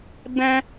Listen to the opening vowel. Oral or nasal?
nasal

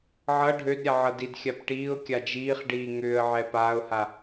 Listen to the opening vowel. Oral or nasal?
oral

